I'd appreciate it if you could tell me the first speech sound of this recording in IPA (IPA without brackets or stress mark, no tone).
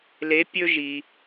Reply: l